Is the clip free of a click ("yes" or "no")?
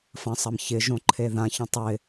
no